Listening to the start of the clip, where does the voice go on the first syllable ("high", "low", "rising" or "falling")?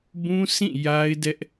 high